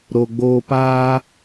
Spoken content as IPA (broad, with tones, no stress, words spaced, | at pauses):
ɾo˨ɡ͡boː˧ paː˧